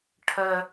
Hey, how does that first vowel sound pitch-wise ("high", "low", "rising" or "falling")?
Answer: high